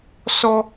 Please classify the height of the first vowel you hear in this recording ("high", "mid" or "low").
mid